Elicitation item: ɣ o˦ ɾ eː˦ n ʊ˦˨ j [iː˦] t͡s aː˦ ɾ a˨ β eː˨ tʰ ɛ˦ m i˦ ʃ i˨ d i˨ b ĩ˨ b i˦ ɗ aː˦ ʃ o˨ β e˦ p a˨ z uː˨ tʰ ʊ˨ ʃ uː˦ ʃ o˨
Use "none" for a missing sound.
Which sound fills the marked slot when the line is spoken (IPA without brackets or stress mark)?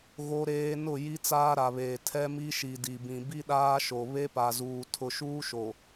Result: i˦